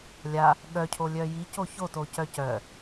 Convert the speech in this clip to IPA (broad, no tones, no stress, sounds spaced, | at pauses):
lʲ a | ɠ œ cʰ o lʲ œ j i c o ç o t o c œ c œ